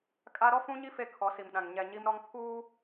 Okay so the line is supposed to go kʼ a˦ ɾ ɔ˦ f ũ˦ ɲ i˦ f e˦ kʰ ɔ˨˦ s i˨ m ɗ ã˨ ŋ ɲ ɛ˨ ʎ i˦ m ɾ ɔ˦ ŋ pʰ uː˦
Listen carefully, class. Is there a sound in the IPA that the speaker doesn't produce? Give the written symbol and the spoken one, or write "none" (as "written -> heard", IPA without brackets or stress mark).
ʎ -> ɲ